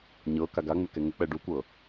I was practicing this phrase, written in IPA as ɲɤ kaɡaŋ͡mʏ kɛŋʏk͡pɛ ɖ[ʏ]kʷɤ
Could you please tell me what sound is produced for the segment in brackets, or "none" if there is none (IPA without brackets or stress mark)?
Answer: u